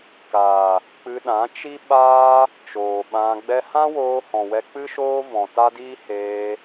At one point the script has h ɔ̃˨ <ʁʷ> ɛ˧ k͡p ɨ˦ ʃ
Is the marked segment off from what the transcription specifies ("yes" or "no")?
yes